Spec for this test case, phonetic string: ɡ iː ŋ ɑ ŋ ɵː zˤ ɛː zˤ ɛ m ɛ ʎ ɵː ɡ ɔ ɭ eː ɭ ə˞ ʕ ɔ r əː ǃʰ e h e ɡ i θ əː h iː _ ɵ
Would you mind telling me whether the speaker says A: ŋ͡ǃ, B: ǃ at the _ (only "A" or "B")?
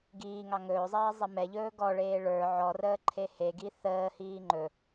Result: A